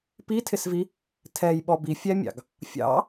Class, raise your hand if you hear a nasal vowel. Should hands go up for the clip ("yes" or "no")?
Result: no